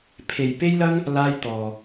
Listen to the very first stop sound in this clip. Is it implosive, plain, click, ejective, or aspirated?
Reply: aspirated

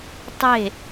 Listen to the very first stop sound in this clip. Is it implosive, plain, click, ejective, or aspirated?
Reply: plain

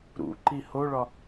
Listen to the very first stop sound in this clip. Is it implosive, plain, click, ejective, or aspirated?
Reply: click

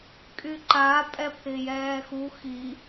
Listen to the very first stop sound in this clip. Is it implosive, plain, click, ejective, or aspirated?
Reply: ejective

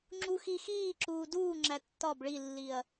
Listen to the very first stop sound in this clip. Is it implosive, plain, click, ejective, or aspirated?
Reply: click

